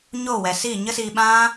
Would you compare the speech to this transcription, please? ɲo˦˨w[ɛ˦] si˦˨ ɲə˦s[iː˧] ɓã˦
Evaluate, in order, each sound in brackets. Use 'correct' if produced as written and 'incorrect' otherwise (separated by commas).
incorrect, correct